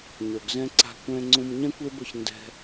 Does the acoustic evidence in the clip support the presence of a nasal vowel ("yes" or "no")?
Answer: yes